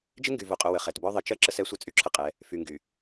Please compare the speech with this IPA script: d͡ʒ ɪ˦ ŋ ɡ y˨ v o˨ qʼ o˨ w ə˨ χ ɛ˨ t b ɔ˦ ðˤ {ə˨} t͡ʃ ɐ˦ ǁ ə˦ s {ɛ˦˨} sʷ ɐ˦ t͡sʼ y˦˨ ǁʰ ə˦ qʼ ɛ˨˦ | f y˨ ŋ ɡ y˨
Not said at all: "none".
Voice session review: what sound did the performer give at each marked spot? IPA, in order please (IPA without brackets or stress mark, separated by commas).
ə˨, ɛ˦